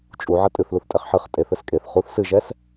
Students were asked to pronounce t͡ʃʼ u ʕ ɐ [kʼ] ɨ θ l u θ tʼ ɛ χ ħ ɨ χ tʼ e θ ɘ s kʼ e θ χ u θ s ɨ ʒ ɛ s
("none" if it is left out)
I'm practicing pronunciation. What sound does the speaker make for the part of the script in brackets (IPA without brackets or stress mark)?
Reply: tʼ